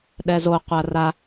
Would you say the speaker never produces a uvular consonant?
no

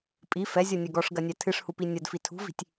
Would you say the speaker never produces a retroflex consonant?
no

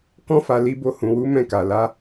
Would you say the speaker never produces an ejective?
yes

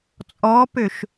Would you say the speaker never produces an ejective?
no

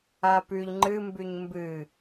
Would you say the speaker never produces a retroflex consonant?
yes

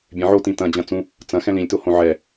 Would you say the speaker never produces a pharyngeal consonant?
no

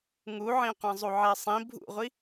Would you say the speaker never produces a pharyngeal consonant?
no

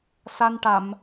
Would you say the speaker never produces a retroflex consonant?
no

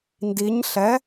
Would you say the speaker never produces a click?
yes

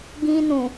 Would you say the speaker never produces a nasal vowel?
no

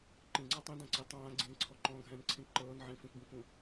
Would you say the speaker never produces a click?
no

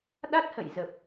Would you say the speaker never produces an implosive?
no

